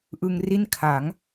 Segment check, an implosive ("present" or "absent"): absent